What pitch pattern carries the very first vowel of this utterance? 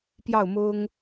falling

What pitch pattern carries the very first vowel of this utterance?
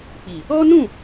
low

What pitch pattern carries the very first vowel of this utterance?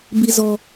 low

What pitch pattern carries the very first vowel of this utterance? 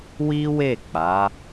high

